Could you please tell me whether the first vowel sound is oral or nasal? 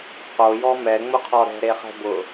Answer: oral